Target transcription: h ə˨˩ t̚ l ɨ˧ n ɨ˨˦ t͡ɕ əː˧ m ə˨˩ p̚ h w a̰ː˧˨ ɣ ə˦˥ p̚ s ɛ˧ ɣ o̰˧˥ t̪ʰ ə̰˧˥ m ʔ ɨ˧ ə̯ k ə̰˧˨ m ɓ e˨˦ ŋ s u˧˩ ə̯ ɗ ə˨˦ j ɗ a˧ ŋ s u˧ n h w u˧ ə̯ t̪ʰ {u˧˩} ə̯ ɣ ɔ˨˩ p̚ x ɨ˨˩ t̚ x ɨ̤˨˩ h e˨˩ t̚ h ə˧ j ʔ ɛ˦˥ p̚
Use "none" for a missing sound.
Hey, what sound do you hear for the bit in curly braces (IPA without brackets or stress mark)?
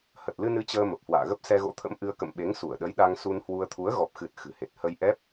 u˨˦